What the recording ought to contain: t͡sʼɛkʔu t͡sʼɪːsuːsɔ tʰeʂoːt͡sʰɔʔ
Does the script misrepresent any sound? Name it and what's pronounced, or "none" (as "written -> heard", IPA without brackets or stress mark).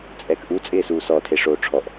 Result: t͡sʰ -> ʈ͡ʂʰ